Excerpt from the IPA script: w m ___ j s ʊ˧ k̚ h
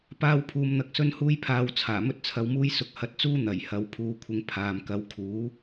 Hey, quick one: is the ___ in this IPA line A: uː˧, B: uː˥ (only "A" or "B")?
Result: B